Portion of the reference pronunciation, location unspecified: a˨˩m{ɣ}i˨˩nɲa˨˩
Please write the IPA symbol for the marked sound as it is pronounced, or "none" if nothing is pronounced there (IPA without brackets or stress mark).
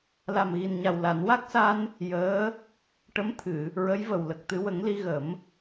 ɣ